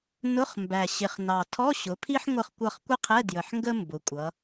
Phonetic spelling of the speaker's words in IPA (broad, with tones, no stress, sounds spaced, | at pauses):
n ʊ˧˥˧ χ m b æ˨˩ ɕ ɪ˨˩ χ n ɑ˨˩ tʰ ɔ˧˥˧ ɕ ʊ˩˧ pʰ i˥ ħ ŋʷ ə˦˨ χ kʷ ʌ˦˨ χ kʷ ɪ˥ qʰ ɛ˧˥˧ d j ə˨˩ ħ ŋ ɡ ə˥ m b ʊ˩˧ kʷʼ ʌ˩˧